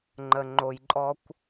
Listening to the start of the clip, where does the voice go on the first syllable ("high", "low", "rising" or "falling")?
low